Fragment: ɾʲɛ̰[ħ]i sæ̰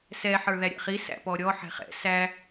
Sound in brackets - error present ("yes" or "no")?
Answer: yes